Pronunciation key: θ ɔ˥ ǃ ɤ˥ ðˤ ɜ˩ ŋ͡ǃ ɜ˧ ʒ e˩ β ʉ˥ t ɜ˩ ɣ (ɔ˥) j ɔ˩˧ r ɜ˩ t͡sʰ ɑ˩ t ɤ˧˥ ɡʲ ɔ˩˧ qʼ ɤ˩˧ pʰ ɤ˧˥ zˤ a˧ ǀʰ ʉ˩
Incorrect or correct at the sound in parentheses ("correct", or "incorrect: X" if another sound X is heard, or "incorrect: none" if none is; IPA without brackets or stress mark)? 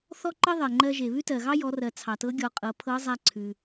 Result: incorrect: ɑ˥